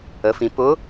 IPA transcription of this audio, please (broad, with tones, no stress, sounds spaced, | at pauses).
ə˩˧ f ĩ˩˧ p ʊ˧˥